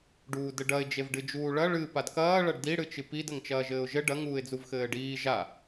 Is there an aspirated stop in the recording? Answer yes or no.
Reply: no